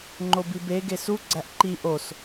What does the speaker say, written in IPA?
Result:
ŋ͡ǃ o b i b e ɡ e s u ɡ͡ǀ æ ʔ ǃ i ʔ o s

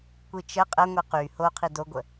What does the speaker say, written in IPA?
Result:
kʷ i t͡ʃ ə qʼ ə ŋʷ i q y h o qʰ i d o ɡʷ ə

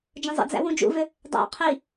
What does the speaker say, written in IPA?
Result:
d͡ʒ ə̃ zˤ ə̰ d͡z æ̰ w ũ d͡ʒ ṵ v ʏ | dˤ æ̰ qʰ i

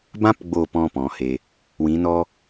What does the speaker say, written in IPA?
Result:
b ã˧ p ɡ͡b o˨ p ɔ̃˦ p ɔ̃˨˦ h e˧ | w ĩ˨˦ n ɔ˦

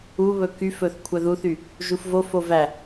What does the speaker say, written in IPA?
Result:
u β ɵ k y f ɵ θ kʷʰ œ ð u θ y | ʒ u f v o f o v æ

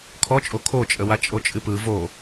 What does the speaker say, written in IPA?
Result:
kʰ ɔ t͡ʃʼ o kʰ o t͡ʃʼ ə w a t͡ʃʼ o t͡ʃʼ ɨ p ɯ v o

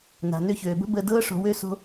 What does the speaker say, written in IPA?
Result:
n a̤˨ n ø˧ ç øː˨ b ə̤˦ b əː˧ d ɤː˦ ʂ o̤˧ w ø˦ s o̤˦

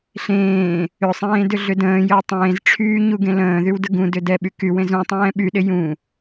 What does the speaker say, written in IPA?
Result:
ɬ ẽː | ʏ sˤ ẽː d ʏ ɮ ʏ d ə̃ː j əː tˤ ẽː z ʈ͡ʂʰ yː ɲ u ɡ ẽ l ə̃ː ð y w d ə ɡ ũ d ʏ d ɛ ɓ y k y w ẽ z ũ tˤ ɛ̃ː ɓ y ɗ ɪ j ũ

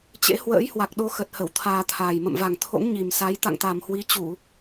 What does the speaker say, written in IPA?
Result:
t͡ɕ ḛ˧˥ h w ə̰ː˧˥ j h w a˨˩ k̚ ɗ o˧ x ə˨˩ t̚ h ə˧˩ w t̪ʰ aː˧ t̪ʰ aː˨˩ j m ə̰˧˨ m v a˨˩ ŋ t̪ʰ o̰˧˥ ŋ ɲ i˨˩ m s a˨˦ j t̪ a̰˧˨ ŋ t̪ a˨˩ m h w i˨˦ t͡ɕ u˧˩˨

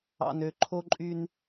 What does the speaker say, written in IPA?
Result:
ɑ̰˨ n ø˨ ǃʰ o˦ ǃʼ y˦ n

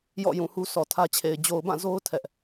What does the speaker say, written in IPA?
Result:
j ɔ̰˦˨ j ũ˨ h u˦ s ɔ˨ tʰ ä˦ t͡ɕʰ e˨ ɪ̯ d͡ʑ o˨ ʊ̯ b ã˦˨ z o˦ ʊ̯ tʰ ɛ˦ ʔ

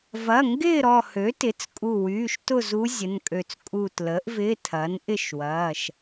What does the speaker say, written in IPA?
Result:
v ɐ˩˧˩ ŋ ɡ ɪː˥˨ ɾ ɔ˧˩ h ø˩˥ t ɪ˩˥ t͡s kʼ u˧˩ w yː˩˧˩ ʃ t ʊ˥˨ z u˧˥ zʲ ə˩˧˩ n kʼ ø˧˩ t͡s kʼ u˧˩ t l əː˩˥ ʔ v ɪː˧˥˧ tʰ ɐː˩˥ n ʔ ɪ˥˨ ʃ w ɐː˩˧˩ ʃ

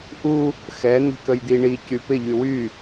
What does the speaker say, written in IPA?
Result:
ʔ u | x ɛ n̪ i̤ k ə j d̪ i ɳ i c y p ɪ ʎ y w y

